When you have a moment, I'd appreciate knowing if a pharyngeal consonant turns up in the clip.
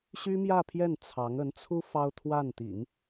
no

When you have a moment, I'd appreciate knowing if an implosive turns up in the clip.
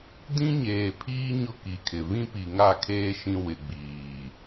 no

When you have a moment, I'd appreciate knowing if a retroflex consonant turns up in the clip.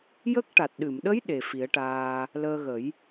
yes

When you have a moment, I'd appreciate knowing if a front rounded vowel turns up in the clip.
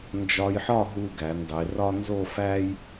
no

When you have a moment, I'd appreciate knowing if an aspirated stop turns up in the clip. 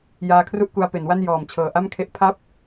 yes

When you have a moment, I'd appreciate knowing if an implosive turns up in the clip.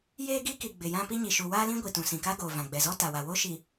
no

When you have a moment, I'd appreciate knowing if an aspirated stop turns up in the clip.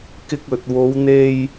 no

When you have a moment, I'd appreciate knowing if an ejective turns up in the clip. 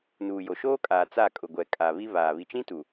yes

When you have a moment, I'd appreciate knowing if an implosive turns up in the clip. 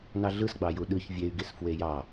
yes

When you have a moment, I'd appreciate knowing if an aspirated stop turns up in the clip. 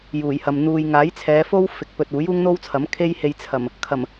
yes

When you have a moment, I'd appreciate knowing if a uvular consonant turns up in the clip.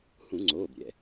no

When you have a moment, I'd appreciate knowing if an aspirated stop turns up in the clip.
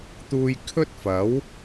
yes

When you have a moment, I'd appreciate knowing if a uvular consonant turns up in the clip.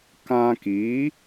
no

